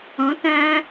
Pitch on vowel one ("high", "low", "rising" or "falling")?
rising